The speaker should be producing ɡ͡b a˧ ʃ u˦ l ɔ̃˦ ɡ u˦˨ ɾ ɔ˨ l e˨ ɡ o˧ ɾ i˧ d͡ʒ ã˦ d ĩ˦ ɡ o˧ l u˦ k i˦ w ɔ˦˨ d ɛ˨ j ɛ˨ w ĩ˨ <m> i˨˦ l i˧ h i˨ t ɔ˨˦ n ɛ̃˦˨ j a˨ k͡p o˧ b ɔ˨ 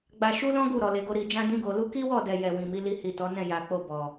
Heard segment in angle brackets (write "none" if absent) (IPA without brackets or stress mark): m